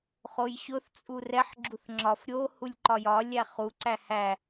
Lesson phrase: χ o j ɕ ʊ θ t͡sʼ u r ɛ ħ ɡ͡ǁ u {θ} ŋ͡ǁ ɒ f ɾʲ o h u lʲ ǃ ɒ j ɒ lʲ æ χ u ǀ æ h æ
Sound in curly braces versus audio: correct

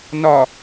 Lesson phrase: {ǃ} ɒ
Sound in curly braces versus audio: incorrect: n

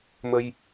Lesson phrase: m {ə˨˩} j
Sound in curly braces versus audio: incorrect: ə˧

